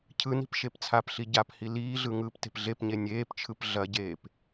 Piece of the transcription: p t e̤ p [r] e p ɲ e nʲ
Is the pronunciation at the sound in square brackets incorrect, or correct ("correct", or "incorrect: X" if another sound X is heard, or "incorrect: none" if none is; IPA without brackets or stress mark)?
incorrect: ɮ